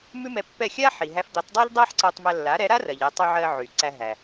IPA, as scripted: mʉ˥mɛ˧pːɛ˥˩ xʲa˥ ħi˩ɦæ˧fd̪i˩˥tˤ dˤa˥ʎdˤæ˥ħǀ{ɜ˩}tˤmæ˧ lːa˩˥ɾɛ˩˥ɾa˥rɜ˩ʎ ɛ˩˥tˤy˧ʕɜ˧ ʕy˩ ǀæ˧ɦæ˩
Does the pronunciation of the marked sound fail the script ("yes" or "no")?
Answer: yes